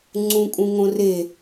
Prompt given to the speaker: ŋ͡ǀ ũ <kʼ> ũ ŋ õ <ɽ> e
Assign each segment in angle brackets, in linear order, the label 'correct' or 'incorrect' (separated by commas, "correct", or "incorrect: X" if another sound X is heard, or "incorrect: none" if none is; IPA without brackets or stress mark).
correct, incorrect: r